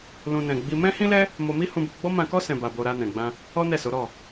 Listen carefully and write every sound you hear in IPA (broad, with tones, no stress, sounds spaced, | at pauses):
l ũ˧ n ɛ̃˨ ɡ͡b i˧ m ɛ̃˦ h ĩ˦ l ɛ˦ | m o˧ m i˦ h ũ˧ b o˧ ɡ͡b ɔ˦ m ã˧ k ɔ˦ s ɛ̃˧ b a˧ b o˧ ɾ a˧ n ɛ̃˨ ɡ͡b ã˧ | ɔ˦ n ɛ˦˨ s o˨˦ ɾ ɔ˦˨